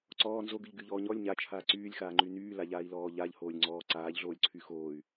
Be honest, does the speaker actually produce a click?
yes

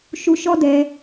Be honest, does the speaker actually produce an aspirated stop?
no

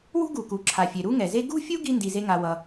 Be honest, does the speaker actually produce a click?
yes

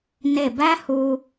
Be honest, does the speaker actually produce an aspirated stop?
no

